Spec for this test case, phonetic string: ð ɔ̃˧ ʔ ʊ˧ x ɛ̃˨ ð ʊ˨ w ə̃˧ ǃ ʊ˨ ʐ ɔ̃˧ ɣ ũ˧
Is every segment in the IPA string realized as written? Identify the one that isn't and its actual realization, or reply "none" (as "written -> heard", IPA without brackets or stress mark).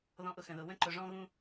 ɛ̃˨ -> ə̃˨